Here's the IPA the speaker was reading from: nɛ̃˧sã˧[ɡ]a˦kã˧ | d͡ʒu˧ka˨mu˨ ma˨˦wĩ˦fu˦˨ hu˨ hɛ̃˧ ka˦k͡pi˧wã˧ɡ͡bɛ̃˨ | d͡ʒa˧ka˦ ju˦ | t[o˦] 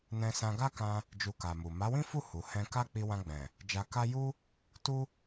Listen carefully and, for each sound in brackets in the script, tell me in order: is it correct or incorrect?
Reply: correct, incorrect

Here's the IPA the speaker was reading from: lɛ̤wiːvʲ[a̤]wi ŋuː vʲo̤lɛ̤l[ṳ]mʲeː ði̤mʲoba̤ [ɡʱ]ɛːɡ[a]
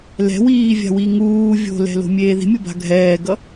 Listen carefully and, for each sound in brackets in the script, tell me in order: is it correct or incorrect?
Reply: correct, incorrect, correct, incorrect

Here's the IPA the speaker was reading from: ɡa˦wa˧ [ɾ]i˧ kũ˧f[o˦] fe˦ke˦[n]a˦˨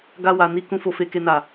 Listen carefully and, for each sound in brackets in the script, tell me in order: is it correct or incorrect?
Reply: incorrect, incorrect, correct

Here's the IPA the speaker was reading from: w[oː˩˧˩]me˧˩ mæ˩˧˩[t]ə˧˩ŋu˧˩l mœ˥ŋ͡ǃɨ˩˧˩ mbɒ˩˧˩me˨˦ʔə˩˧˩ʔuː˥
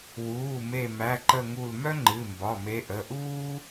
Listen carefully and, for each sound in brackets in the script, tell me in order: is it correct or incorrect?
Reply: incorrect, incorrect

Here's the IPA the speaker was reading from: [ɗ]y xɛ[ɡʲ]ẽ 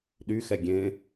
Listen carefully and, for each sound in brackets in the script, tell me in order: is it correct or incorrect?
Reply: correct, correct

